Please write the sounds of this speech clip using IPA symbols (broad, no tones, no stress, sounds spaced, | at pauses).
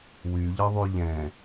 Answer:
w y ʎ ə ðˤ y ʎ ɛ̃